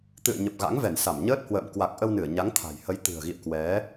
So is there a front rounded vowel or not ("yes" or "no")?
no